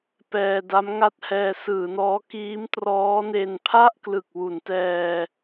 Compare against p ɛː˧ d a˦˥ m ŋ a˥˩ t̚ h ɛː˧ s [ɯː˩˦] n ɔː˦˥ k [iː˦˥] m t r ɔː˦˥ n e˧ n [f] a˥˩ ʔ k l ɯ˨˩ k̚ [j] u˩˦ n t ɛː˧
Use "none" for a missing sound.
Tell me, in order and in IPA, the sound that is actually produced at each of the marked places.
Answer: ɯː˩˦, iː˦˥, pʰ, w

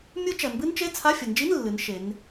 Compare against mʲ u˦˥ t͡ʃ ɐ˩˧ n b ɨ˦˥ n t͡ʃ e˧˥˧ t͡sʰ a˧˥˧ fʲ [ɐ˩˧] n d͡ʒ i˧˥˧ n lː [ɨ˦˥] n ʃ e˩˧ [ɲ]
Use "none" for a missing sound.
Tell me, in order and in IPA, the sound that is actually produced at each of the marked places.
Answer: ɐ˩˧, ɨ˩˧, n

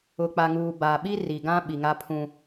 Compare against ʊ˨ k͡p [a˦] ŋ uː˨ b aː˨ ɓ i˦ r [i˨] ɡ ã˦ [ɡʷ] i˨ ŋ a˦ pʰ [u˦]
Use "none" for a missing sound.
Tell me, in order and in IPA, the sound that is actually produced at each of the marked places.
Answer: a˨, i˨, ɓ, ũ˦

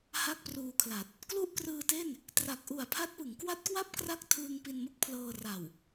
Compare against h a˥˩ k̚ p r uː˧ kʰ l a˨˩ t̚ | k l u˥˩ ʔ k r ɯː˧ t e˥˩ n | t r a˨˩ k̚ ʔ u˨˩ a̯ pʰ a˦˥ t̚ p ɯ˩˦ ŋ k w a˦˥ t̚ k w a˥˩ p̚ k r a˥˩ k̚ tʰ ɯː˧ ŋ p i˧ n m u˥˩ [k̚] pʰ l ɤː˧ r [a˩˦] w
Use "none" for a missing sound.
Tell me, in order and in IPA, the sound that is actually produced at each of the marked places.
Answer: k̚, a˨˩

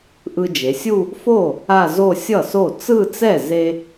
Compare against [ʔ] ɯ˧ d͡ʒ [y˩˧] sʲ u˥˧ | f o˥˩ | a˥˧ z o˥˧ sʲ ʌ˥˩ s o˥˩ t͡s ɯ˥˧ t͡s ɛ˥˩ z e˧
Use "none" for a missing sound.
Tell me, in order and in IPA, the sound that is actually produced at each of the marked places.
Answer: ʔ, e˩˧

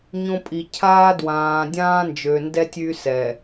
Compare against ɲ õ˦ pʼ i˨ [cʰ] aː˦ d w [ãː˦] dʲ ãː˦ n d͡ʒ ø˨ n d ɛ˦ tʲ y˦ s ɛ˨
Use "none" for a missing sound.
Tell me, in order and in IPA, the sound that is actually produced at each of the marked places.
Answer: cʰ, ãː˨

